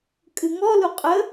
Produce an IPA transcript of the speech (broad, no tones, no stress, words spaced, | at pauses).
kʼɨŋɔlu qʼə